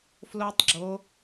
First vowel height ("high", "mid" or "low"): mid